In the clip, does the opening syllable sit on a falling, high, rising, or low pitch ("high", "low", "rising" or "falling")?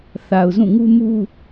low